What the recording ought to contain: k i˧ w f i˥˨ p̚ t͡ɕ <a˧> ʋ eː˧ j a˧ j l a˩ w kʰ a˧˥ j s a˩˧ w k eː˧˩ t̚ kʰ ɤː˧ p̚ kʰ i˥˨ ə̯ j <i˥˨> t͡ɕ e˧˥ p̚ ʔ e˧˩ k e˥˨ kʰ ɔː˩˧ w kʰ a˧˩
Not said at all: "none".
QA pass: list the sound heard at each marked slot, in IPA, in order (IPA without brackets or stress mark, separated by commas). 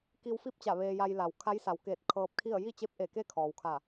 a˧˩, i˥˨